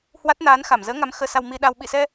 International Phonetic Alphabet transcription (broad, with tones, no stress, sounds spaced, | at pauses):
h w a˦˥ t̚ n aː˨˦ n x a˧˩ m z əː˨˦ ŋ a˨˦ m x əː˧ s a˧ w m i˧ ɗ a˧ w ɓ ḭ˧˨ s ɛ˧